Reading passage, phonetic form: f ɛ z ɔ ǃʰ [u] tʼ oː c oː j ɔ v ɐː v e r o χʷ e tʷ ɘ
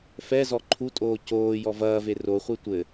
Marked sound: correct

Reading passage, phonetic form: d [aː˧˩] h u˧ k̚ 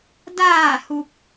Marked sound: correct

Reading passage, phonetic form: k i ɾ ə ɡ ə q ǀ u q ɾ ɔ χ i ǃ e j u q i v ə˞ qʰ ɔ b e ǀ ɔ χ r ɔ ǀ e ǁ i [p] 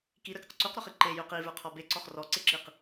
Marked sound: incorrect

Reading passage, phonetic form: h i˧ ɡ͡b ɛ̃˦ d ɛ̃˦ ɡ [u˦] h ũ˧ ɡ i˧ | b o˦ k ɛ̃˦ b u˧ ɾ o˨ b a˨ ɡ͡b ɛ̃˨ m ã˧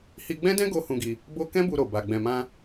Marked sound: incorrect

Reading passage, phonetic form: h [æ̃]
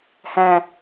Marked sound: correct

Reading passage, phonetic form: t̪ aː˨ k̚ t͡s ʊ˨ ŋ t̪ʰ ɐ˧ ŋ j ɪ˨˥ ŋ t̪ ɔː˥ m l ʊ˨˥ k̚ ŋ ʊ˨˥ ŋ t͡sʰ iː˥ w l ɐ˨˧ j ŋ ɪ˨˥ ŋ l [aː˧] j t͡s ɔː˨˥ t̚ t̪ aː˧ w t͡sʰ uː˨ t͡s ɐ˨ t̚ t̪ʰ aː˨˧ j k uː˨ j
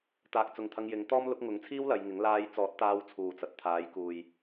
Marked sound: correct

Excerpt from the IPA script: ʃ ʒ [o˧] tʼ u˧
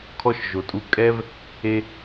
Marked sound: incorrect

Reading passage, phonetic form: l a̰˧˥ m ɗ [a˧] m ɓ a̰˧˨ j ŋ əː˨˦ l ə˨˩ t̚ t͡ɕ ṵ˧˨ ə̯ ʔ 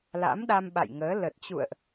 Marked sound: correct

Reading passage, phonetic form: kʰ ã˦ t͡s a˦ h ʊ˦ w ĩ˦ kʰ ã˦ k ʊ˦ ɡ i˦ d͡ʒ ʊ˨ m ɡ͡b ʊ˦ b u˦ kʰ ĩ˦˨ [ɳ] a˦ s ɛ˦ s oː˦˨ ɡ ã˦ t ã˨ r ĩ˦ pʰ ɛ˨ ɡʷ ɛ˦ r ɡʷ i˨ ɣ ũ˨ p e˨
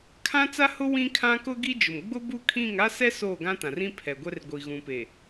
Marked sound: incorrect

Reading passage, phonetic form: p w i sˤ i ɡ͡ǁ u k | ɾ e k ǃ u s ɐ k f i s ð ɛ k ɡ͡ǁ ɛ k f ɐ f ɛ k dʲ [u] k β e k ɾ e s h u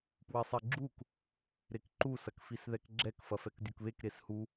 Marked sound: correct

